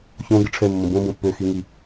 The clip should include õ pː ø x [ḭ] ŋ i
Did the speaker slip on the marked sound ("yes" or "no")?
yes